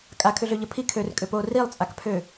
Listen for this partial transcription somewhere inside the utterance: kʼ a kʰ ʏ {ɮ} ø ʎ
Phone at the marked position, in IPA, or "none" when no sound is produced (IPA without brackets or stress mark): ɮ